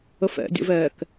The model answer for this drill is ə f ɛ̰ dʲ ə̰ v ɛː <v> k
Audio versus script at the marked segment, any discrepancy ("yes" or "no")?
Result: yes